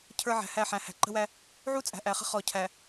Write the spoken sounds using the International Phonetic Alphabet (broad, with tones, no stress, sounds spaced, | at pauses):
cʰ ə˞˦ ʕ æ̤˨ h æ˦˨ ħ æ̃˨ h æ̤˨ ǃ ə̤˦ w æ˦ | ʕ u˦ t͡sʼ æ̤˨ ʔ æ˨ χ ə̤˦ χ ɔ˨ cʰ æ˨